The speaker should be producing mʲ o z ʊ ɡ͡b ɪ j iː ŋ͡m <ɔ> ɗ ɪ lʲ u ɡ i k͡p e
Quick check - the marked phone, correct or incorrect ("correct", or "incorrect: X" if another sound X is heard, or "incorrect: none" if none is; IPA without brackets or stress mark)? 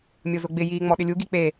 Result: correct